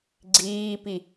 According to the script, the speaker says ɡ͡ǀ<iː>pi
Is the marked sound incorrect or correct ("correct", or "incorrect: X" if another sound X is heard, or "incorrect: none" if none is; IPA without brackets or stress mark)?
correct